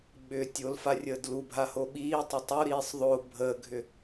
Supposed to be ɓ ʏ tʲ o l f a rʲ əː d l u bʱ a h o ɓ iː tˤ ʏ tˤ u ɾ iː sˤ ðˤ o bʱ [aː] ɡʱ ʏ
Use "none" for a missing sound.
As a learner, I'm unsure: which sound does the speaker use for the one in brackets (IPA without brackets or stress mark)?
əː